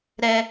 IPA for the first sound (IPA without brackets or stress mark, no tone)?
ɾ